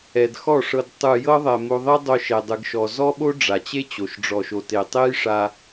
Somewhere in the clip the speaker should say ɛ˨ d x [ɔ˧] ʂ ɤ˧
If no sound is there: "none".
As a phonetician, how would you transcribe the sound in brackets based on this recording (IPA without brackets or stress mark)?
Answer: ɔ˦˨